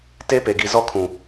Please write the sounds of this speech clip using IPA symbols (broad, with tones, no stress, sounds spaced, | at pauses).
t e˦ p e˨ ɡ i˨ z ɔ˦ kʰ ũ˨